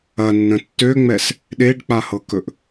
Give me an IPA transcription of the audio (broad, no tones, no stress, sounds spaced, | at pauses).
ɐ nː ə̃ tː ø ŋ͡m ɛ s | ɗ e ɖ k͡p a h ɤ k ɵ ʔ